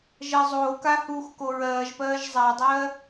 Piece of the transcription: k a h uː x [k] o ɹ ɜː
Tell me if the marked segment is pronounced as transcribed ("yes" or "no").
yes